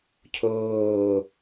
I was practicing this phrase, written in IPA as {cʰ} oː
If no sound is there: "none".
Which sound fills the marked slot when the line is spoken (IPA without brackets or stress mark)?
cʰ